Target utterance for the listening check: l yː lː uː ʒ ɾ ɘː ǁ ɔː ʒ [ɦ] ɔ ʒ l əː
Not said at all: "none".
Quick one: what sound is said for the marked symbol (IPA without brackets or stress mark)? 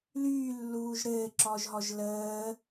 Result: ɦ